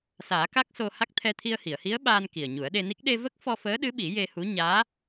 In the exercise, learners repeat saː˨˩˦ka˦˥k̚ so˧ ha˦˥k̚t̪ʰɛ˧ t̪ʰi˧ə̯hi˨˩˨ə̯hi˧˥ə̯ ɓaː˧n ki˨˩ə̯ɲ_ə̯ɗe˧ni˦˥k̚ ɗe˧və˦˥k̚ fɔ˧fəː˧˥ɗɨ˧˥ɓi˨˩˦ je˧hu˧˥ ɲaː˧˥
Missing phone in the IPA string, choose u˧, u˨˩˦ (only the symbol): u˨˩˦